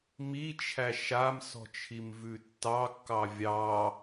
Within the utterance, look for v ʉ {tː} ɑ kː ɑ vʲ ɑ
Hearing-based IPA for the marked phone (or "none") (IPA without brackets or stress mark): tː